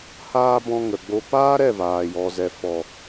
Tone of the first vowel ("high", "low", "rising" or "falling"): high